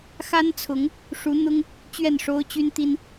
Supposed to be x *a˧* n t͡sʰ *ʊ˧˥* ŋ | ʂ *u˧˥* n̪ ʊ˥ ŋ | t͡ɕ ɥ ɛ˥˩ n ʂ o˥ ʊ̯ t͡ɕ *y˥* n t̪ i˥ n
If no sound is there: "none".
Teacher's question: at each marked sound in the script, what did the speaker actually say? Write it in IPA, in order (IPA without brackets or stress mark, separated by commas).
a˥, ʊ˧˥, u˧˥, y˥